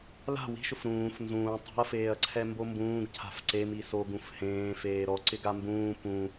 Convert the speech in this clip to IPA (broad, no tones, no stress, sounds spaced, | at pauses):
l a̤ w i̤ ʃ ʊ f ɾ ũː f n z ũː tˤ i̤ ɐ̯ f eː ɐ̯ ǀʰ ɛ m b o m b ũː ɡ cʰ a̤ f ǀ e m i s o ɡ ũ f h ẽː f eː ɾ ɔ ǀ ɪ ɡ a m b ũː p ũ